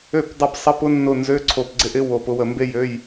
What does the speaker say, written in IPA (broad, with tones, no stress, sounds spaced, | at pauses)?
ø˧˩ p dˤ ɐ˧˩ p sˤ ɐ˧˥˧ p ʊ˥ nː ʊ˧˩ n z ø˧˥˧ ǀʰ o˧˩ p ɡ͡ǀ ɪ˥ ʔ ɪ˥ w o˧˩ p ʊ˥ w ə˧˩ m b e˥ j ø˧˥˧ j